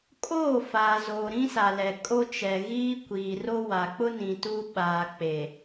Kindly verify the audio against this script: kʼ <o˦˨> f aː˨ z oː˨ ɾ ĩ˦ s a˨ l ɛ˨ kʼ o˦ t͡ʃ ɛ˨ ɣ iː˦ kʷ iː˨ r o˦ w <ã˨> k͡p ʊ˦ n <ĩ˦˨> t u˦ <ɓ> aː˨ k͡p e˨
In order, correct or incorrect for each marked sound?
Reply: incorrect, incorrect, incorrect, correct

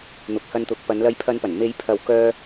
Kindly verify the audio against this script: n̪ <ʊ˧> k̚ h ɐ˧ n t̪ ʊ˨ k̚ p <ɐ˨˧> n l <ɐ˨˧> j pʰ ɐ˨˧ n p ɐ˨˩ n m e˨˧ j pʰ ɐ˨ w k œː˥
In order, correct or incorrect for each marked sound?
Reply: incorrect, correct, correct

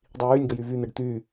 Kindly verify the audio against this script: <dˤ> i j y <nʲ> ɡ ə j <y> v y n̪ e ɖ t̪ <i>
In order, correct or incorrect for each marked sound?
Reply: correct, correct, correct, incorrect

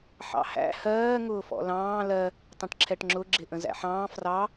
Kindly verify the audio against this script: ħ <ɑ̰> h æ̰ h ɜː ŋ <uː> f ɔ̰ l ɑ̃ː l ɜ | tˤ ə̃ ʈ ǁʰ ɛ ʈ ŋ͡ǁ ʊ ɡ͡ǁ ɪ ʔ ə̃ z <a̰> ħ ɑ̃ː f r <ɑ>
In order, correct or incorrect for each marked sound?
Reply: correct, incorrect, incorrect, correct

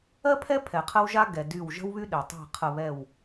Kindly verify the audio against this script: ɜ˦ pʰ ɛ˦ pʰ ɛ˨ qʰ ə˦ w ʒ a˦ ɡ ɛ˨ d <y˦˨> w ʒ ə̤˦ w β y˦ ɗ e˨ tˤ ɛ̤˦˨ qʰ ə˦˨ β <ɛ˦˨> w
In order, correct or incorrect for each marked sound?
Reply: correct, correct

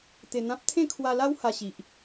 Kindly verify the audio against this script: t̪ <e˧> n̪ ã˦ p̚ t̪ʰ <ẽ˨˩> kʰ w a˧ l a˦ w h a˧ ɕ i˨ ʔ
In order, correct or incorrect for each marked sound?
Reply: correct, incorrect

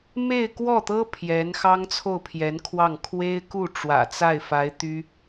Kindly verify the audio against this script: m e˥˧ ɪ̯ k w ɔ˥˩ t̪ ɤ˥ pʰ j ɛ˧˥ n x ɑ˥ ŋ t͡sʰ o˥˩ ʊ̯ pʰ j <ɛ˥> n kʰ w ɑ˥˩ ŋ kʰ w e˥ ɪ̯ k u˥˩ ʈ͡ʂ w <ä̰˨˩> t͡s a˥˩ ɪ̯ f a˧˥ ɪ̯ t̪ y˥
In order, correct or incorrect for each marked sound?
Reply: incorrect, correct

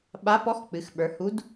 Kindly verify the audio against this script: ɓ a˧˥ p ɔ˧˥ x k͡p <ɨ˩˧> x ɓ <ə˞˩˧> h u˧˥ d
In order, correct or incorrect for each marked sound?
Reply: correct, correct

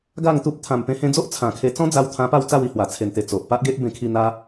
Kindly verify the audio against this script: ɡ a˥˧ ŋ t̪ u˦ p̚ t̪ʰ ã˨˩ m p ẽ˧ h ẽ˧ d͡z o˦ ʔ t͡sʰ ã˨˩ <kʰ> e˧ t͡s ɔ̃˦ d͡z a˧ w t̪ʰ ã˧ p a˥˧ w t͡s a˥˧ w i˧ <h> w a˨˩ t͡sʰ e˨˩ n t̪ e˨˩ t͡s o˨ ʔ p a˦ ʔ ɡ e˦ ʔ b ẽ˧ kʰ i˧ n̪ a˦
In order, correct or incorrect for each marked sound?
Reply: correct, correct

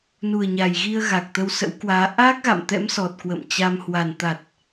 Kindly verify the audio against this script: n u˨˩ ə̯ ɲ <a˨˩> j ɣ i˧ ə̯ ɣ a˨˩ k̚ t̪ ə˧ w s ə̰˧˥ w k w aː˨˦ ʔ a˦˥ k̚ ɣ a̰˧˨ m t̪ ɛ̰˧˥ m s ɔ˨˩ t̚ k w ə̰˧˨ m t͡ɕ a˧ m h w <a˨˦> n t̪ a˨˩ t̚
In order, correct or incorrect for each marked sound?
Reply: correct, incorrect

